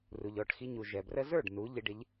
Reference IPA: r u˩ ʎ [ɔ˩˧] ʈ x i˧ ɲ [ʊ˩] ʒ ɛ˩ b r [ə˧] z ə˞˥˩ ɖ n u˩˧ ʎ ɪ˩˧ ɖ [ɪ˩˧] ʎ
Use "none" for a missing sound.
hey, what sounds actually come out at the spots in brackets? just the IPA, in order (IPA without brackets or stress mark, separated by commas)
ɔ˩˧, u˩, ə˧, ɪ˩˧